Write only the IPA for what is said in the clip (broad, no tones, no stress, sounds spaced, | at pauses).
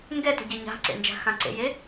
ŋ ɡ ɛ t o̤ ɟ e ɲ a̤ ǀ ḛ n d͡ʒ a̤ x ã ǀ ḛ j e